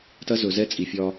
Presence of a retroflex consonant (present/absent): absent